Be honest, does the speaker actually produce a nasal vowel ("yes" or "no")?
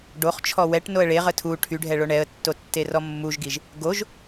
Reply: no